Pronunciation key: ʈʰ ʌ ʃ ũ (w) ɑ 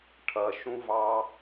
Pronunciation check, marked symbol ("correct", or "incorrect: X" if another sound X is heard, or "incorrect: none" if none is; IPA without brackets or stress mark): incorrect: v